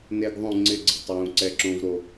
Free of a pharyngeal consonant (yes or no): yes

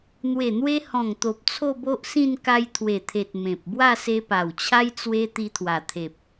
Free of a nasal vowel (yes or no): no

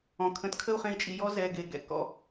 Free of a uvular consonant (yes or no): no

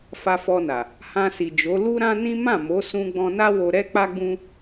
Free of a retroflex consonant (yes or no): yes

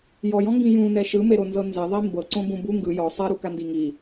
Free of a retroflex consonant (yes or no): yes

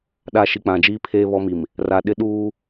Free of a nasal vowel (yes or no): no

